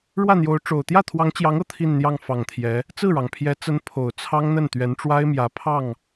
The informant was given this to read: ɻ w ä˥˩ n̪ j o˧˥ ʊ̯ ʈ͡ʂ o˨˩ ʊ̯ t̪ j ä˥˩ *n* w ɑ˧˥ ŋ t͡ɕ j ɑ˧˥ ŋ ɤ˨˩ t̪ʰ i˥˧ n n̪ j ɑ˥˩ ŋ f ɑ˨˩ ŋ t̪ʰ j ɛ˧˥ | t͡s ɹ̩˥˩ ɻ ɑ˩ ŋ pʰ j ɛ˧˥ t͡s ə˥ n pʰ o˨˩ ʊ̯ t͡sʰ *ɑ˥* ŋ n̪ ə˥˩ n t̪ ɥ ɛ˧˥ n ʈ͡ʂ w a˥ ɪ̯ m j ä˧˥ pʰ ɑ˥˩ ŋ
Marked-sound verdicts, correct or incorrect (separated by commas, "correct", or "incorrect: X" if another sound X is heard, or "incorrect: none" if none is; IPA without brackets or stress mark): incorrect: t̪ʰ, correct